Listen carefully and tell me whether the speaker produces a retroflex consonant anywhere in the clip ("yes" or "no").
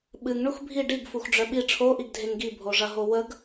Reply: yes